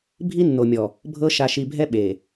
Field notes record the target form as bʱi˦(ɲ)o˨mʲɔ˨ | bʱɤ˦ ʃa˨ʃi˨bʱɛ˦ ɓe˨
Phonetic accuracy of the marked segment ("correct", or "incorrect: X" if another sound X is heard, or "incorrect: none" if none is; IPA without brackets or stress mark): incorrect: nː